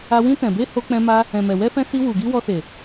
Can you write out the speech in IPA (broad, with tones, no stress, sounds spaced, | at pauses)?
a˧ w ĩ˧ t ɛ̃˨ b e˧ h o˧ k͡p ɛ̃˧ m a˧ | ɛ̃˨ m ɛ˨ w ɛ˧ f ɛ̃˧ s i˧ w u˨ ɡ i˧ w ɔ˧ s e˨